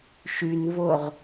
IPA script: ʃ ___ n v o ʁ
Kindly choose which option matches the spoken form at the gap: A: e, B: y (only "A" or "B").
B